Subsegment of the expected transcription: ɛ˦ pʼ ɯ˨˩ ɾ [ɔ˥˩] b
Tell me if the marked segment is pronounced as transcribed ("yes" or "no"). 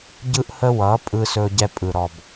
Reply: no